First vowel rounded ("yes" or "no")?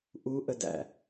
yes